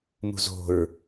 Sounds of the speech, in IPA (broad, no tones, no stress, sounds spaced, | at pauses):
m ṳ z o̤ ɹ